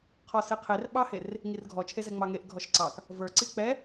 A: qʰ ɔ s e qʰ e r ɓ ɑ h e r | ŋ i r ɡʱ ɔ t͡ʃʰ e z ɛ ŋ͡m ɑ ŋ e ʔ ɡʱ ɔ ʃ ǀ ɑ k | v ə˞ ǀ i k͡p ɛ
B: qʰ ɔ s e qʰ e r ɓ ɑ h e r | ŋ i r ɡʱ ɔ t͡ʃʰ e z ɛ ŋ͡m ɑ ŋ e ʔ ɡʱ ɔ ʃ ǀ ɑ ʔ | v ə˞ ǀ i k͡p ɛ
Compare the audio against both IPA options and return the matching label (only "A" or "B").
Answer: A